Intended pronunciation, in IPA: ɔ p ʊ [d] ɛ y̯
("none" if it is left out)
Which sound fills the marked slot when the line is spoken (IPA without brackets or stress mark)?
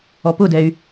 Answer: d